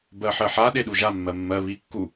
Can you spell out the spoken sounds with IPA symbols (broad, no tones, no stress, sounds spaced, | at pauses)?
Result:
b ɜ ħ ɜ ħ a ɗ e ɗ u ʒ a mː ɜ mː ɜ β i kː u